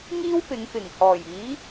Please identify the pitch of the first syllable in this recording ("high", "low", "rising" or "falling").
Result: high